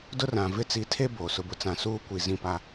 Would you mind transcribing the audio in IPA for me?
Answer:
d ʊ˦ r ã˨ v ɪ˦ t͡s i˨˦ tʰ e˦ b oː˨ s ʊ˦ b ʊ˦ t͡s ã˨ s uː˦ kʷ i˨ z ĩ˦˨ p a˦

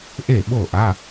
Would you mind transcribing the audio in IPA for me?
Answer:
ʔ e˥˨ ɓ o˥˨ ʔ a˧˥˧

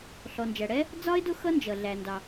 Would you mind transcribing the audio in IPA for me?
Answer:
ɬ ɔ˩ n d͡ʒ æ˩ ɽ ɛ˥ | d͡z ɒ˥ ɪ̯ d ʊ˥ x ʌ˥ n d͡ʒ ʌ˩ ɮ æ˩ n d ɑ˩

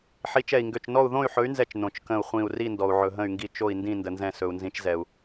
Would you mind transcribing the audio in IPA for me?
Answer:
ħ i˨˥ t͡ʃ ɛ˧˩ i̯ ŋ ɡ ø˧˩ t͡ʃ n ɔ˥˨ u̯ ð õ˥˨ y̯ ħ ɵ˨˥ y̯ n z ɛ˧˩ t͡ʃ n õ˩ t͡ʃ k ə̃˧˩ u̯ χʷ ĩ˧˩ u̯ r i˥˨ n d ɔ˩ u̯ ʕ ɵ˩ ɦ ə̃˧˩ y̯ ŋ ɡ i˧˩ t͡ʃ o˧˩ i̯ n d ĩ˧˩ n d ə˩ n z ɛ̃˧˩ s ɵ˩ u̯ n z ĩ˨˥ t͡ʃ z ɛ˩ u̯

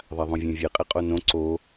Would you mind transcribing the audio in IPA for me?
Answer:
ðˤ a ðˤ õ vʲ ɛ̃ vʲ e qʼ e qʼ o n õ ǀ o

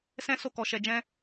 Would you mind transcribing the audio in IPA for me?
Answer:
s ɛ̃˦ s o˦˨ k ɔ˧ ʃ ɛ˧ d͡ʒ ɛ̃˦

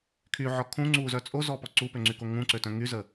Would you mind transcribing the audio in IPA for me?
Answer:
kʰ y ʕ ɔ kʰ ũ ŋ͡ǀ u z œ t͡sʼ o z ɔ p ɔ ǀ u p ø ŋ͡ǀ y k o ŋ ũ ǀ ø t œ̃ ŋ y z ə

